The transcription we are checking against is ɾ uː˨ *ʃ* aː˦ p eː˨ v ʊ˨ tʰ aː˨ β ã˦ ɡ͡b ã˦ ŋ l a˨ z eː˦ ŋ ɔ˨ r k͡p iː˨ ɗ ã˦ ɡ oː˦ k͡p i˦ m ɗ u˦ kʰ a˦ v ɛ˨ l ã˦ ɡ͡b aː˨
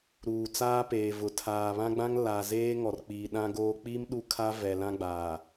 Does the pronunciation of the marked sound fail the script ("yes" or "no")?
yes